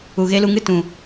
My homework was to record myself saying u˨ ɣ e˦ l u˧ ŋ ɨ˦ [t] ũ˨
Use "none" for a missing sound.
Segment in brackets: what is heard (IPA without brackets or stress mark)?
t